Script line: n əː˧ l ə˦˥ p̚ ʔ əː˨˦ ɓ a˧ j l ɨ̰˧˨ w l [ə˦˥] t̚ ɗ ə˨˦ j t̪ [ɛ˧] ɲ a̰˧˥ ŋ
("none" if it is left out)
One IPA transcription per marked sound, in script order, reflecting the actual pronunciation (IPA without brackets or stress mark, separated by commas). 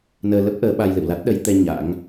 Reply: a˦˥, ɛ˧